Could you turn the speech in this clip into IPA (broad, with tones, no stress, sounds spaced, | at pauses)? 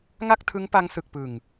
ŋ a˥˩ k̚ tʰ ɯ˦˥ ŋ p a˦˥ ŋ s ɯ˨˩ k̚ p ɯ˨˩ ŋ